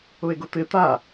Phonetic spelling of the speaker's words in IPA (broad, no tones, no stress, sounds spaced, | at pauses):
ʊ e̯ ɡ ʊ t̪ ɪ t̪ a